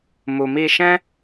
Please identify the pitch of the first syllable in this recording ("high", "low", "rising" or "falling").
low